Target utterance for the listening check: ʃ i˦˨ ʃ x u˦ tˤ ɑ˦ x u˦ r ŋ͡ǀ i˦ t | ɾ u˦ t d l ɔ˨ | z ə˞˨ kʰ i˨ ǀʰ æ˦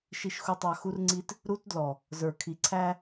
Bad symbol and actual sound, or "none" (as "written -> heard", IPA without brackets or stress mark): none